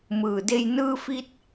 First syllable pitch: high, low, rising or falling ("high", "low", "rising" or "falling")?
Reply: low